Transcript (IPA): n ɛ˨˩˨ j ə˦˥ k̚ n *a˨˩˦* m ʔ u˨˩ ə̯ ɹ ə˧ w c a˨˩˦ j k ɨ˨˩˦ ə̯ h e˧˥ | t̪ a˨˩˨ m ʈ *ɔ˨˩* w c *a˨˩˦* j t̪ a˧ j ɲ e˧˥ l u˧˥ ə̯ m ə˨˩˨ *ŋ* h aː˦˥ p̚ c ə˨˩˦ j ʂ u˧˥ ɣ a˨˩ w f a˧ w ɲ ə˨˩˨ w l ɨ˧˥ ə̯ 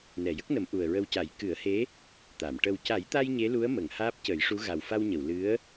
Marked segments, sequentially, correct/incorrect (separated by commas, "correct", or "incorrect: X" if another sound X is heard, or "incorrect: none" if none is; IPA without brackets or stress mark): incorrect: ə˨˩˦, incorrect: ə˨˩, correct, correct